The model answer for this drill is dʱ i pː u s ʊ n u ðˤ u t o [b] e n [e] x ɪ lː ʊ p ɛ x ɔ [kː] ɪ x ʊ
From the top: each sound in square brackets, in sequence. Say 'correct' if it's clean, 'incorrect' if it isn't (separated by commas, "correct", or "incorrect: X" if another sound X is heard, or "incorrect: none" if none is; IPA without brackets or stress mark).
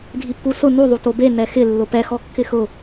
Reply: correct, incorrect: ɛ, correct